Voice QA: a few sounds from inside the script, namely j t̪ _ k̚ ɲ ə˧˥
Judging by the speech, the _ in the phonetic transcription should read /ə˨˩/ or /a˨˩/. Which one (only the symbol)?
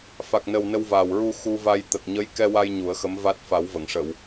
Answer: ə˨˩